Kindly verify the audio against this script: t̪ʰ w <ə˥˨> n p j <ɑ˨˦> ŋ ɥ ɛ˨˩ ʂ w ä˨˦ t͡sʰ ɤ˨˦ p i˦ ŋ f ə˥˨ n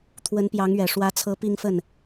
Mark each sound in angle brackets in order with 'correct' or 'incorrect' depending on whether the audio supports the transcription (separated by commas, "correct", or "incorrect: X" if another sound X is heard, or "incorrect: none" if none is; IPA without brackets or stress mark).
incorrect: ə˨˦, correct